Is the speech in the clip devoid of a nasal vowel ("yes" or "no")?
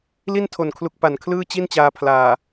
yes